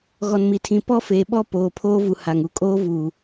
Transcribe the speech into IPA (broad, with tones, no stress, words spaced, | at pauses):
ɣɔ˨nmi˨tʰĩ˨ pɔ˦feː˨ɓɔ˦ poː˨pʰoː˦vu˨ ha˨ŋu˦ kʼoː˦vuː˨